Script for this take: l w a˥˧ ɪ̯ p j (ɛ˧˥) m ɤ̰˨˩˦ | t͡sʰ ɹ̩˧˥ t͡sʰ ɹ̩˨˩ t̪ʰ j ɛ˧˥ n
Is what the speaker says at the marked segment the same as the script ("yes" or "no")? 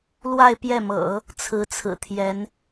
no